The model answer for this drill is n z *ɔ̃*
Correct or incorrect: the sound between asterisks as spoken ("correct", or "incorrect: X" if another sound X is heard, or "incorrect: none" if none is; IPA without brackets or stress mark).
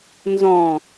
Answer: correct